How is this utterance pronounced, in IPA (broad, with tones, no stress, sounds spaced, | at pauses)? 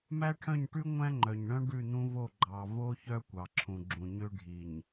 m æ˦ ʈʰ œ̃˦˨ ɲ ʈ ʉ˦ ŋʷ æ̃˦ ŋ͡ǃ œ˨ ɲ ɳ œ̃˦ ɖ ʉ˦˨ n̪ ũ˦ v o˦˨ ɡ͡ǃ ɑ˨ v o˦ ç œ˦ kʷ ɑ˨ ǁʰ ũ˨ ɡ͡ǁ ũ˨ ɲ ø˦ ɖʱ i˨ ɲ